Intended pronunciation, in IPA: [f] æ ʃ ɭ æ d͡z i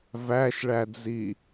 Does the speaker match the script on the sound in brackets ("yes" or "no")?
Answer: no